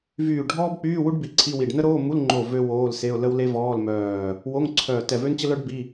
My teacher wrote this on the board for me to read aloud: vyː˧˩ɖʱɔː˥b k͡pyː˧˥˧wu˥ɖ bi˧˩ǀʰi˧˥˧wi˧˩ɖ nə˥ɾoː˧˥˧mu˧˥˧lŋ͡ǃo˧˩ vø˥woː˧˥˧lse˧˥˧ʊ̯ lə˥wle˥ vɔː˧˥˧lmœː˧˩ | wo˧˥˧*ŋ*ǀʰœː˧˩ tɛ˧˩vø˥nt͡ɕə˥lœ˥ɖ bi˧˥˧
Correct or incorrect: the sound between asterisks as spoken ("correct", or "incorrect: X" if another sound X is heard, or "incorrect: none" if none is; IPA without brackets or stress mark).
correct